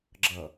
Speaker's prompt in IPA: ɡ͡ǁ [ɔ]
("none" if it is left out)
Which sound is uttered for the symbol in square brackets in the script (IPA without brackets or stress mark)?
ʌ